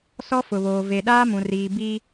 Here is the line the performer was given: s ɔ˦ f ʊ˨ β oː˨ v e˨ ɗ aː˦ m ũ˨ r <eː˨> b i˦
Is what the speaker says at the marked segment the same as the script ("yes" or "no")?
no